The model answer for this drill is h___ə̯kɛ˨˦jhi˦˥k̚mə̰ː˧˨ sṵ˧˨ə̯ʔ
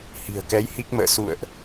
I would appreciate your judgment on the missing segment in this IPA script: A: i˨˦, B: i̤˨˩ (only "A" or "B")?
B